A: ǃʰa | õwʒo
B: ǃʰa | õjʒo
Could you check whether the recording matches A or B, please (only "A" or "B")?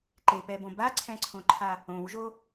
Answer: A